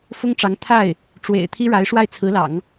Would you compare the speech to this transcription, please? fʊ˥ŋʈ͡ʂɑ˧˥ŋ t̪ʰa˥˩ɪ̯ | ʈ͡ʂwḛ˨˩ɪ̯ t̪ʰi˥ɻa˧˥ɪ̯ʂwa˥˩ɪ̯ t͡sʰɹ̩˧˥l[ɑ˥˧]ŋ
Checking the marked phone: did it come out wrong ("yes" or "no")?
yes